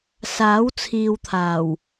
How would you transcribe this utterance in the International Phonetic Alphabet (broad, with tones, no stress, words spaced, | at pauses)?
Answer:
saː˨˥wt͡sʰiː˨wt̪ʰaː˨˩w